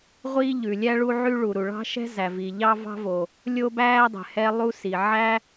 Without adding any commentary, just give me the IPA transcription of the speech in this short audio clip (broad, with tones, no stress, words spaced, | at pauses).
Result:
ʁʷiː˥ ʎʉ˩lʲæ˥ ɭu˥ʕy˥ ɭu˩ɾu˩ɭɑ̤˥ ʃɛ̤˥ zæ˩viː˩ ʎɑ˥ vɑ̤˥vo˩ | lʲo˥bæː˥dˤɛ̤˩ hɛ˥lˠu˥si˩ ʕæ˥